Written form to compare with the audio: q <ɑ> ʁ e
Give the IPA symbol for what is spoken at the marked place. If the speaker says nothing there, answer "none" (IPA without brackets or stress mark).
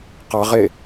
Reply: ɑ